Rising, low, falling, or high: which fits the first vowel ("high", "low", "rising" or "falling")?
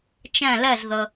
falling